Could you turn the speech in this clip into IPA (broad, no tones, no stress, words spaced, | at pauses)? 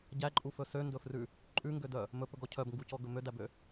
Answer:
ɟæǃʼufɵ søndɵfrʉ | ǃʼʉŋɡødœ | mɵpɵɡɔ cʰœbŋɡucɔɡɵ mødæbø